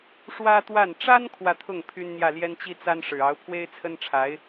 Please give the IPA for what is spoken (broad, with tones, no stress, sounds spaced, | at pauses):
ʂ w ä˥ t̪ w a˥˩ n ʈ͡ʂ a˥ n kʰ w ä˥˧ t̪ʰ ʊ˥˩ ŋ pʰ y˥ n n̪ j ä˥˩ l j ɛ˥ n t͡ɕ i˥ t͡s a˥ n ʂ ɻ̩˨˩ ɑ˧˥ ʊ̯ pʰ w e˥ ɪ̯ t͡sʰ ə˥ n ʈ͡ʂʰ a˧˥ ɪ̯